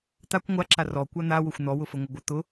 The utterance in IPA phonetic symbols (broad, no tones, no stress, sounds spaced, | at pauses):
t̪ a kʷ ŋʷ a ǁ a r ɔ kʷ a n̪ a w ʊ xʷ n̪ ɔ w ʊ f ə ŋʷ ə ɡʷ ə t̪ ʊ